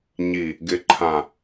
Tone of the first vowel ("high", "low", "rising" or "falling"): low